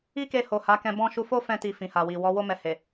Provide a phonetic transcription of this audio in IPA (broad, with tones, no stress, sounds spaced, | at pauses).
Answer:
i˦ k e˧ h o˨ h a˨˦ k ɛ̃˧ b ɔ̃˦ ʃ u˧ f o˦ f ɛ̃˧ t i˨ f ĩ˨ h a˨ w i˨ w ɔ˨˦ w o˦ m ɛ˧ h e˨